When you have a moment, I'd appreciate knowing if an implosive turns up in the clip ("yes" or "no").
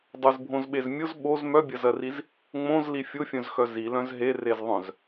yes